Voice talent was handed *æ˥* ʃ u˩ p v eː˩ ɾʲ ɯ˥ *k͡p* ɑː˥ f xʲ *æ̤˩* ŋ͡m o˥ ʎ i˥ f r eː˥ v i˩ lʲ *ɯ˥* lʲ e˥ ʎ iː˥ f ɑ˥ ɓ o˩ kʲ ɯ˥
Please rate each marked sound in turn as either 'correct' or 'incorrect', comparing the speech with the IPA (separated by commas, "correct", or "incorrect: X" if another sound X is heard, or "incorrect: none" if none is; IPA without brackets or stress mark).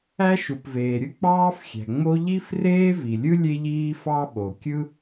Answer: correct, correct, correct, correct